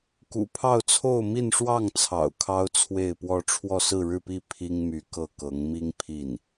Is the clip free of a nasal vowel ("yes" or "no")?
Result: yes